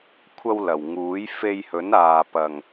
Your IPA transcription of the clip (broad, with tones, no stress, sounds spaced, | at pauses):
kʷʰ ɐ˧ w l ɐ˨˩ w ŋ uː˨˥ j f e˧ j h ɵ˨˥ n aː˨ p ɐ˨ ŋ